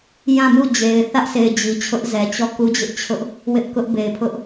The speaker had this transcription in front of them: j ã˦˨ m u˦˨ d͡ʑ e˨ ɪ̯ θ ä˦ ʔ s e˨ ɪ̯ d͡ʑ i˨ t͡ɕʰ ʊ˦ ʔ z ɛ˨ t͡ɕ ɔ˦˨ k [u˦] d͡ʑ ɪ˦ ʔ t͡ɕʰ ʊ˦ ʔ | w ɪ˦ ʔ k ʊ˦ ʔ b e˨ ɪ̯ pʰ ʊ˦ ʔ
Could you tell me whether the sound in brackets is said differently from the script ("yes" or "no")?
no